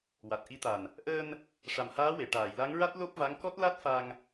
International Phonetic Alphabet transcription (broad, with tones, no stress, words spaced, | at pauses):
wa˨˩t̚ʔi˧˥t̪a˨˩n | ʔəː˧n | ʂa˨˩mhaː˧˥ we˨˩˨ʈaː˨˩˨jla˧˥ŋɹa˦˥t̚ lo˦˥p̚va˧˥ŋ kɔ˦˥t̚la˦˥t̚fa˧ŋ